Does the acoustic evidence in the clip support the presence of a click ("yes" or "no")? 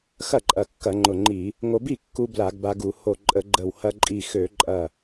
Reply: yes